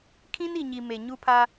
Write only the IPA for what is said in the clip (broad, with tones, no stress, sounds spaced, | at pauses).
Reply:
kʰ ĩ˦ n i˨ ɲ i˨ m e˨ ɲ u˦ pʰ a˦